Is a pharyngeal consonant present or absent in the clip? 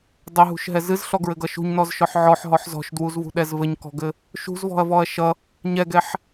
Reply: present